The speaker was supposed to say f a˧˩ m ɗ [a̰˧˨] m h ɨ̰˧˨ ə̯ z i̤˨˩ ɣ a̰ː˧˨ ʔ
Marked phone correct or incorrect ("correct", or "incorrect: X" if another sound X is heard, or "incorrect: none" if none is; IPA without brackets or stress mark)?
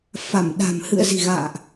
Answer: incorrect: a̤˨˩